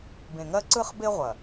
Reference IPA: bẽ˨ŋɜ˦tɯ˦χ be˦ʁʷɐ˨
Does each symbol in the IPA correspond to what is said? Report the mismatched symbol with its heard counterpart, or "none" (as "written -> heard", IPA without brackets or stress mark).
t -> ǀ